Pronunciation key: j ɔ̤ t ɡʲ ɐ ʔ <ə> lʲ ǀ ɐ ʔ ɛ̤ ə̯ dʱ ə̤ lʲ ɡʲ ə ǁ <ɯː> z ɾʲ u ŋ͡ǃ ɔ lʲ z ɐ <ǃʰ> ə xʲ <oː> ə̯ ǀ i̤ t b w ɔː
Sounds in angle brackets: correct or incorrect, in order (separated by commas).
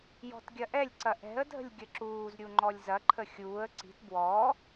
incorrect, incorrect, correct, incorrect